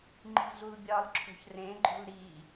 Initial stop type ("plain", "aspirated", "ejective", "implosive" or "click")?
click